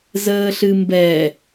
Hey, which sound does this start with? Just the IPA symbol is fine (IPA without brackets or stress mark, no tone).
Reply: z